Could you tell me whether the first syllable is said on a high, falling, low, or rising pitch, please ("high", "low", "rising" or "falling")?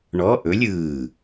rising